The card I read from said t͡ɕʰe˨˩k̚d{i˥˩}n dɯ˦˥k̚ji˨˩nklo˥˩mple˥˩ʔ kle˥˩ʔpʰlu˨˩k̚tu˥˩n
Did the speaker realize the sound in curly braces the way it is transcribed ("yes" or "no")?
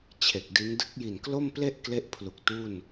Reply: no